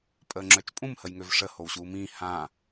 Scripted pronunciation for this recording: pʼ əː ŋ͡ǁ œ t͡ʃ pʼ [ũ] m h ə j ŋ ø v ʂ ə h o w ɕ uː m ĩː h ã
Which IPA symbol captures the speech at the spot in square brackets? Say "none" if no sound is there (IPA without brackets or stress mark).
ũ